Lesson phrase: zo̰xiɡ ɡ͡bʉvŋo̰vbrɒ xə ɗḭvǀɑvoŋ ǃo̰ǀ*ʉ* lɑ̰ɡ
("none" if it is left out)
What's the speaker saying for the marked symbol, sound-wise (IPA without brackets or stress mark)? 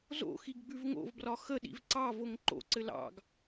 ɘ